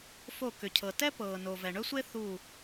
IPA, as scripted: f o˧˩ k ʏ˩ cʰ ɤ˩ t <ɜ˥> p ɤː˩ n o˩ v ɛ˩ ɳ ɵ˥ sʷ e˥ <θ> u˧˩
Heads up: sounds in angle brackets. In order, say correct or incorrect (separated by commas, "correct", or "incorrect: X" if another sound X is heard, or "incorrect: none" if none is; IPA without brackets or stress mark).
incorrect: ɛ˥, correct